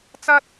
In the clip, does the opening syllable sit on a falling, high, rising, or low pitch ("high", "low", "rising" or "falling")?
high